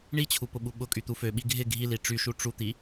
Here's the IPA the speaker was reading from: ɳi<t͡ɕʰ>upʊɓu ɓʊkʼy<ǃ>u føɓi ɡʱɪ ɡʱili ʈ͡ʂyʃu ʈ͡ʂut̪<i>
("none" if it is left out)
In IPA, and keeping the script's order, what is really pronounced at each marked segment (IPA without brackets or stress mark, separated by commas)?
t͡ɕʰ, t̪, i